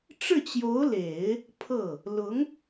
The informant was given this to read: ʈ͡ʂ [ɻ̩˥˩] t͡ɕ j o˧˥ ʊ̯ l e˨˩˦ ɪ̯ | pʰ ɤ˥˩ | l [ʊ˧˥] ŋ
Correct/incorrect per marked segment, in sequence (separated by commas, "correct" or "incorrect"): correct, correct